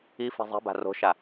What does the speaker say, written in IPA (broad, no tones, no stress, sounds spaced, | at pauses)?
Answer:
i f i̤ zˤ i̤ b a̤ r o̤ ʃ a